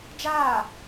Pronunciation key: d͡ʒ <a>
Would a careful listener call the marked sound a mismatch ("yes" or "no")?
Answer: yes